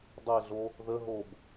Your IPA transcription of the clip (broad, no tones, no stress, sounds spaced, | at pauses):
dˤ e ɮ o | ð ə ɦ o b